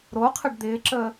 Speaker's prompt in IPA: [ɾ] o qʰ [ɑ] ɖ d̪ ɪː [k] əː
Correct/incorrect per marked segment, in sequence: correct, incorrect: ə, incorrect: ǁ

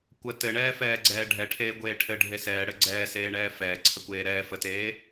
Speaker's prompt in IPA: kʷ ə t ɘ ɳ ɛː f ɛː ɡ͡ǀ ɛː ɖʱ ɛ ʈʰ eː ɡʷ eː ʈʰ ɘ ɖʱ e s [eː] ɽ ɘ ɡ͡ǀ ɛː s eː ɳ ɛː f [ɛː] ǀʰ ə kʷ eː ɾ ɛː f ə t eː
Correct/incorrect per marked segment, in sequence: incorrect: ɛː, correct

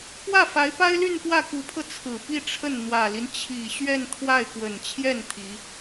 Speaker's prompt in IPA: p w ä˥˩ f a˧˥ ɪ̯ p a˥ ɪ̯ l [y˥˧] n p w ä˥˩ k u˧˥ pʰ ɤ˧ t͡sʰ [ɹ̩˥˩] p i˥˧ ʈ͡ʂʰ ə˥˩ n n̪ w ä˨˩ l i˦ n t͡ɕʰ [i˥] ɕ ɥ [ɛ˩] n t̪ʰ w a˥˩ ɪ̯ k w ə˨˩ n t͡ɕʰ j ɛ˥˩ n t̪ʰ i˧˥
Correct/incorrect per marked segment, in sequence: correct, incorrect: ɹ̩˨˩, incorrect: i˨˩, incorrect: ɛ˥˧

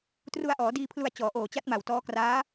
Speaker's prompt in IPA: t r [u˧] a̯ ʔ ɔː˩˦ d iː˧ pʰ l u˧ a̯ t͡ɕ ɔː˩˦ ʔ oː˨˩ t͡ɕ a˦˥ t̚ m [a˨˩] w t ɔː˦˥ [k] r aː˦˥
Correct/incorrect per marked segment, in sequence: correct, correct, correct

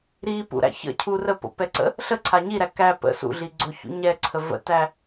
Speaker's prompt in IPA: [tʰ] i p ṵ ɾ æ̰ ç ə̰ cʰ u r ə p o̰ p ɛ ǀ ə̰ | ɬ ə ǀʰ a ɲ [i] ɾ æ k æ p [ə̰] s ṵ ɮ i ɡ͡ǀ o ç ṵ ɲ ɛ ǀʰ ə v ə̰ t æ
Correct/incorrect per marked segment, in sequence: incorrect: ɾ, correct, correct

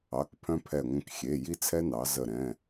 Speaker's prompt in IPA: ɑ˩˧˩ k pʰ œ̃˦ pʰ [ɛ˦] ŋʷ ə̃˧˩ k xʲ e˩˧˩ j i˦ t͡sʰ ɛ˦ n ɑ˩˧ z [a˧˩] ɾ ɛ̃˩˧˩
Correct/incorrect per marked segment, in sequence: incorrect: ɛ˧˩, incorrect: ə˧˩

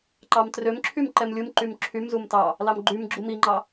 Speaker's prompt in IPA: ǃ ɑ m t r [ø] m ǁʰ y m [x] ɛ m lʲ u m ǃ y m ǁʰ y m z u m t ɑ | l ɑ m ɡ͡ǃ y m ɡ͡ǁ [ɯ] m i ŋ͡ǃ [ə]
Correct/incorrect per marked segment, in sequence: correct, incorrect: ǃ, incorrect: u, incorrect: ɑ

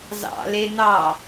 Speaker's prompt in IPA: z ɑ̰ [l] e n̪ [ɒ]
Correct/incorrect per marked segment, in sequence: correct, incorrect: ɑ

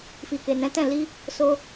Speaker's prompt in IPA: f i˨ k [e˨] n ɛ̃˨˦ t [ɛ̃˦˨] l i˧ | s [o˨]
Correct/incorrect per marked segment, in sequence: correct, correct, incorrect: o˧

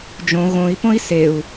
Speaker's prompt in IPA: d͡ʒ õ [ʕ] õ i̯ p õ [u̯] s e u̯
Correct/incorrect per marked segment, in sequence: incorrect: ɣ, incorrect: i̯

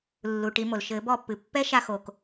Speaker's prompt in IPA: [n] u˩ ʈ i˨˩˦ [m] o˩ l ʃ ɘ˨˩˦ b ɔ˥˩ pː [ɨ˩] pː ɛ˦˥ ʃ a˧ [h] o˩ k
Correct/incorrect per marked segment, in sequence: incorrect: lː, correct, correct, incorrect: x

